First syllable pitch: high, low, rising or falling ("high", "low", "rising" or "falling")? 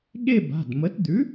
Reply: falling